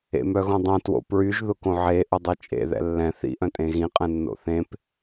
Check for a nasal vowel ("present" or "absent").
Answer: present